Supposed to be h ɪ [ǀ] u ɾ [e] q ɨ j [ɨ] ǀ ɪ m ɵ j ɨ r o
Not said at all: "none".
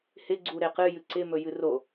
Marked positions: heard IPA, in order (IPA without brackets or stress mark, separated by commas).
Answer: ɡ͡ǀ, e, ɨ